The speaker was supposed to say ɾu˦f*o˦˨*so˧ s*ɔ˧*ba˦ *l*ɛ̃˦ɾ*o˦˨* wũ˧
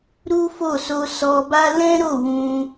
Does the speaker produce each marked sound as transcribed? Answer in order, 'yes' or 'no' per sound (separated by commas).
yes, yes, yes, yes